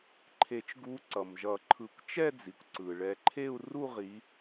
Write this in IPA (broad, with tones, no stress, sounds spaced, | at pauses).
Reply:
ǃʰ e˨˩˦ t͡ʃ ɡ u˨˦ ǀ ʌ˩ m ʒ ʌ˨˩˦ ǃʰ ɯ˨˩˦ kʷ t͡ʃ ɛ˥˧ d͡z i˩ kʷ ǀ ɯ˩ ɭ ɛ˨˦ ǃʰ e˥˧ u̯ r u˥˧ ʁ i˨˦